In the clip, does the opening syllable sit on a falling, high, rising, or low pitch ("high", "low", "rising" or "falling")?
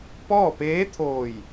falling